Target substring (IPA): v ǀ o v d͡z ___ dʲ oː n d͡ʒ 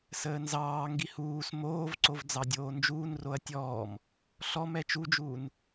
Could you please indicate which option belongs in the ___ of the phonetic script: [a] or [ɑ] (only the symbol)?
ɑ